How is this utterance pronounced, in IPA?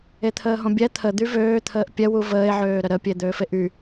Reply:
e t̪ʰ əː ɦ õ bʲ ɛ t̪ʰ ə d̪ y v øː t̪ʰ əː ʔ pʲ ɛ w u v əː e̯ ʕ øː ɾ ə ɾ ə pʲ e d̪ øː f e ʔ y

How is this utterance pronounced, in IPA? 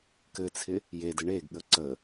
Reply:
k ɘ t͡sʰ ɪ | j e d ɘ ɳ e ɡ ɠ ə ǀ ə

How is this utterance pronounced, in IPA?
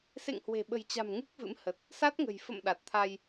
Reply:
s ḛ˧˨ ŋ h w e̤˨˩ ɓ ə̤˨˩ j t͡ɕ a̤˨˩ m ŋ ɨ˦˥ k̚ v ɨ̰˧˥ m h ə˨˩ t̚ | s a˦˥ t̚ ŋ ə̤˨˩ j f ə̰˧˨ m ɗ a˨˩ t̚ t̪ʰ a˧ j

